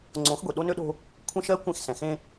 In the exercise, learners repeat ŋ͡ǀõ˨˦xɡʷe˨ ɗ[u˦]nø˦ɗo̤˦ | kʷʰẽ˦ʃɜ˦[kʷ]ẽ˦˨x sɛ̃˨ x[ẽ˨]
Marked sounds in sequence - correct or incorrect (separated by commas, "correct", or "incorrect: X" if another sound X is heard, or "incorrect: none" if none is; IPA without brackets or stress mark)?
incorrect: o˦, correct, incorrect: ẽ˦